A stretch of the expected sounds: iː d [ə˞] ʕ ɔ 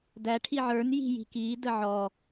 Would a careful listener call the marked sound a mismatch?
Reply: yes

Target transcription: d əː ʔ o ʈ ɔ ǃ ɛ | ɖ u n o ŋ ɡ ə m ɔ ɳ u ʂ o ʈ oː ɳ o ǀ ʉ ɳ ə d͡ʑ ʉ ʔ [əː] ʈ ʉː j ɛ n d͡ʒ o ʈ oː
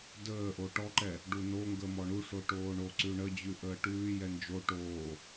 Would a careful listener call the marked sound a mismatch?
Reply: no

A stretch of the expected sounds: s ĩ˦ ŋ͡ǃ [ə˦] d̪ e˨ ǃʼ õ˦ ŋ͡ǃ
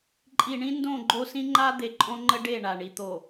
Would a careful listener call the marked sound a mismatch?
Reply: yes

